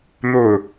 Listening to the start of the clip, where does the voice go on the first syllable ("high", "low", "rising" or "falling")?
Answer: falling